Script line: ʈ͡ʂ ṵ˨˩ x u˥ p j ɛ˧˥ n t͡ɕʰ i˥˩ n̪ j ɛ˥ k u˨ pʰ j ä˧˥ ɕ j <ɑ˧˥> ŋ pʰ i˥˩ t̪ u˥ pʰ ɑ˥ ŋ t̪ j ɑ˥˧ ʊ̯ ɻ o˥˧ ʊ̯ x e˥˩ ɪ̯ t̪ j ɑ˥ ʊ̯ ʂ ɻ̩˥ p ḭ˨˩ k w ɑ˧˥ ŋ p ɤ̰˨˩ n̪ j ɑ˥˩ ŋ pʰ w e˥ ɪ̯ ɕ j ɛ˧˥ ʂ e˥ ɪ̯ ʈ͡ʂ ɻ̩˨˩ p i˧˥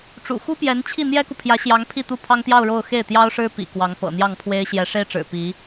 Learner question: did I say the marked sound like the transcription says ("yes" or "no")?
yes